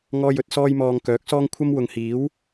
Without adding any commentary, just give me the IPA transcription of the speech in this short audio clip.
ŋ ɔː˥ j ɵ˨˥ t̚ s ɔː˥ j m ɔː˧ ŋ k œː˨˥ k̚ s ɔː˥ ŋ kʷʰ ɐ˥ m w ʊ˨ ŋ h iː˨˥ w

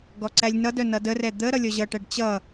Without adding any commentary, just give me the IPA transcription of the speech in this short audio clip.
ɡ ɔ ǀ æ lʲ n ʌ d œ n ʌ d ə r ɛ d̪ ə ɾ ʌ lʲ ɔ ʑ ʌ ʈ æ ɖ t͡ɕ ʌ

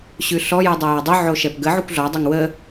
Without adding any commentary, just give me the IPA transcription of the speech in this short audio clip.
ɕ ʉ ɬ ɔ j u dˤ a j a dˤ ʉ ʕ o ʃ ɛ p ɡ ə ʕ u kʷ ɮ ɔ dˤ o ŋ w ə

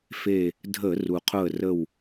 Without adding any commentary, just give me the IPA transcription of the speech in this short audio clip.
f e˧˩ | dʱ ə˧˩˧ r u˩ qʰ ʊ˧˩ ə̯ r ə˧˩ w

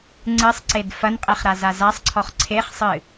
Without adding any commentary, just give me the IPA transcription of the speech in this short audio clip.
ŋ͡ǀ ɨ sˤ ǀ e d f ɐ n qʼ e χ ɾ a z a z a sˤ ǀʰ ɔ χ ǀʰ e χ sˤ ɨ

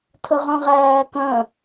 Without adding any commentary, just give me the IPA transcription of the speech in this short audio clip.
tʰ ə ʁ œ̃ ʁ æː k œ̃

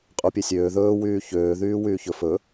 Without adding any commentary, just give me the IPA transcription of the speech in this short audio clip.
qʼ u pʲ e sʲ øː ð ɵː w yː ç øː ð yː w yː ç ɵ f ɵ

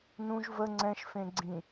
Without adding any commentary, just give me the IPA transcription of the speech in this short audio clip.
n ũ ʒ v ə ŋ͡ǀ ɛ̃ ʃ f ẽ ɡ͡ǀ ĩ

